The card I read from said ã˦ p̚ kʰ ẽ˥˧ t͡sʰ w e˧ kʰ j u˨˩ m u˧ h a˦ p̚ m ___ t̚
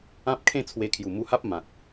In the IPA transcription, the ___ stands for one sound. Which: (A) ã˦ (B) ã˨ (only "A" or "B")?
B